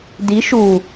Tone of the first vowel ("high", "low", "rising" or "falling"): rising